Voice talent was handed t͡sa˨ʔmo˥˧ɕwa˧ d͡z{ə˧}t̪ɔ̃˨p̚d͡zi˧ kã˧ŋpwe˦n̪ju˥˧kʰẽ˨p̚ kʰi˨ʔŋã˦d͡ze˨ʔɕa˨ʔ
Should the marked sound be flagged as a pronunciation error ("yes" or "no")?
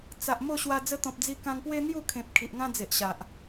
no